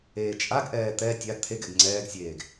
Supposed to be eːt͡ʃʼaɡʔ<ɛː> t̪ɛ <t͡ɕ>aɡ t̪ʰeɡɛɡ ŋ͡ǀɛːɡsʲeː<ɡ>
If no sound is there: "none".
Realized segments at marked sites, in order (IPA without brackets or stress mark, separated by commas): ɛː, tʲ, ɡ